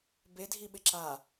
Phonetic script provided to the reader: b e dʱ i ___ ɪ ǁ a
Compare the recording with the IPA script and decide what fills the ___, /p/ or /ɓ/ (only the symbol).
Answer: ɓ